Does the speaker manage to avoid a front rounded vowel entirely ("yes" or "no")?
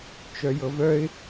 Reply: no